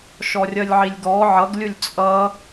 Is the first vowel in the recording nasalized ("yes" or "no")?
no